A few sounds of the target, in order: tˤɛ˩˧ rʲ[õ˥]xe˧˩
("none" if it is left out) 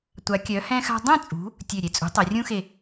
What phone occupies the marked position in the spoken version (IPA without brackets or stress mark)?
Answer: ũ˥